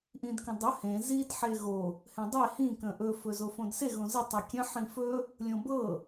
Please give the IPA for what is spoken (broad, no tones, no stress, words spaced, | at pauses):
ʔĩdkə̃dˤɵ hẽ zid ħeɣo | hẽdˤe hĩ kə̃ʔɵ fɵzofõdse ɣõzə tˤəkʲə̃ ħĩfɵ | lʲõbɤ